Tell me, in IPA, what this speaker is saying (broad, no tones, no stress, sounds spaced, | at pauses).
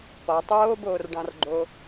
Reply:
p ɒ tˤ oː b oː r ɖ ɑ̃ r ɡ͡ǃ o